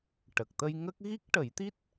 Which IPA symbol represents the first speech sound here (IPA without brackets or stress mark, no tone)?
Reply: ʈ